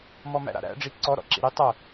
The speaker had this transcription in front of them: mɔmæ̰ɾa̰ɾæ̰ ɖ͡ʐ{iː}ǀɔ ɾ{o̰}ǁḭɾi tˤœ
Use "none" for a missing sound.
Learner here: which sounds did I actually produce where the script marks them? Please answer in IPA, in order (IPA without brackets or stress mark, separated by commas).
i, ɔ̰